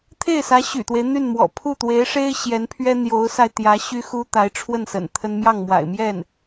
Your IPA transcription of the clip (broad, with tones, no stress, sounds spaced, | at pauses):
t̪ʰ e˥˩ ɪ̯ s ä˧˥ ɕ y̰˨˩ t̪ w e˦ ɪ̯ n̪ y˥˩ n m w ɔ̰˨˩ pʰ u˥˩ t̪ w e˧˥ ɪ̯ ʂ e˥ ɪ̯ ɕ j ɛ˧˥ n pʰ ɥ ɛ˥ n̪ j o˧˥ ʊ̯ s a˧ ɪ̯ t̪ j ä˧˥ ɕ y˥ x u˥ t̪ a˧˥ ɪ̯ ʈ͡ʂʰ w ə˥˩ n s ə̰˨˩ n t̪ʰ ə˥ n m j ɑ˥˩ ŋ m w a̰˨˩ ɪ̯ m j ɛ˥˩ n